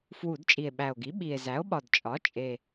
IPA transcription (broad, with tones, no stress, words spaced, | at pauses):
fwu˧˩˧dt͡ʃʼi˨˩e̯ɓæ˨˩o̯ɡi˩˥ ɓi˨˩e̯ zæ˩˥o̯ɓɒ˨˩d t͡ʃʼɒ˩˥t͡ʃʼe˨˩